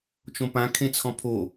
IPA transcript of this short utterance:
t͡ʃ õ p ã kʰ ẽ t͡sʰ ɔ̃ pʰ o

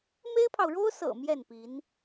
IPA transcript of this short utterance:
m e˥ ɪ̯ pʰ ɑ˨ ʊ̯ ɻ o˥ ʊ̯ s ɤ̰˨˩ m j ɛ˥˩ n p i˧˥ n

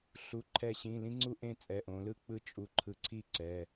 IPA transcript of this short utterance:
ɬ u˩˧˩ ǃʰ ɛ˧˩ ɕ ĩ˩˧˩ l ĩ˦˥ ŋ͡ǀ u˥˧ ʔ ẽ˥˧ t͡sʼ ɛ˩˧˩ ʔ õ˩˧ l ɯ˥˧ k͡p ɯ˦˥ t͡ʃʼ u˧˩ ǃʰ ɯ˧˩ ǀʰ i˥˧ ǀ ɛ˩˧˩

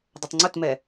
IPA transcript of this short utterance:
dˤ ə tˤ ŋ͡ǀ ʊ t m ɛ

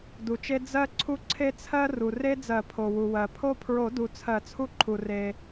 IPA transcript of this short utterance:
d u˩ t͡ʃ e˦ d͡z ɜ˦ ǀʰ u˦ ǀʰ e˦ t͡sʰ ɜ˦ r u˩ r e˦ d͡z ɜ˨˩˦ pʰ o˩ w u˩ w ɜ˩ pʰ o˦ pʰ ɹ o˨˩˦ d u˩ t͡sʰ ɜ˨˩˦ t͡sʰ u˦ ǃʰ u˩ r e˩

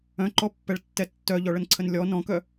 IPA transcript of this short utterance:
œ̃ ǃ ɔ pː ɛ ɭ tː ɛ tː œ ʎ ɔ ɭ ə n ǀʰ ə n lʲ ɔ n ɔ̃ k œ

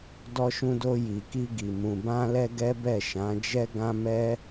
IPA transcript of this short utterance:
d ɔ˧ ʃ ũ˧ d o˧ j i˨ k i˧ ɡ i˨ m ũ˨ b ã˧ l ɛ˧ ɡ ɛ˦ b ɛ˦˨ ʃ ã˨˦ d͡ʒ ɛ˦ ɡ ã˦ m ɛ˦

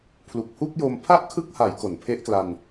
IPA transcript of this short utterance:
pʰ l u˨˩ k̚ h u˥˩ k̚ j o˧ m pʰ a˥˩ ʔ kʰ ɯ˦˥ k̚ h a˩˦ j k o˩˦ n pʰ e˦˥ ʔ k l a˧ n

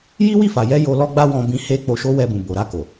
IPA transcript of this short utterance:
j i˦ w i˦˨ f a˨ j ɛ˧ j o˧ l ɔ˦ ɡ͡b a˦ w ɔ̃˦ b ĩ˦ h e˦ k͡p o˧ ʃ o˦ w ɛ˧ b ũ˨ b o˨ ɾ a˧ k o˨

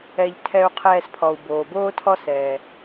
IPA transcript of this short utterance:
ɛ˨ ʎ tʰ ɛ˨ u̯ qʰ ɛː˨ s pʰ ɔ˩ u̯ b oː˩ b oː˥ tʰ ɔ˦ s ɛː˩

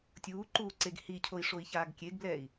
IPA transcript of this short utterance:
tʲ uː ǃ uː ǀ e ɡ h i cʰ o i̯ ʂ o i̯ ç aː ɡ kʲ e ɡ b l ɛː i̯

